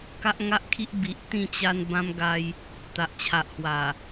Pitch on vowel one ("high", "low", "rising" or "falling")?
high